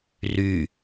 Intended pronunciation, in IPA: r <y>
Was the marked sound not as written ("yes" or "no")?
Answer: no